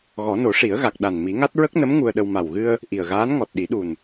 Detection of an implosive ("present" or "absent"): present